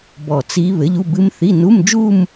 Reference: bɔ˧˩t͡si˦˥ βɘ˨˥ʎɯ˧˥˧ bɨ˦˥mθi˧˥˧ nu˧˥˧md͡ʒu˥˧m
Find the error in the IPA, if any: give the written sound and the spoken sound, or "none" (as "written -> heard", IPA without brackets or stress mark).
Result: ɯ˧˥˧ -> u˧˥˧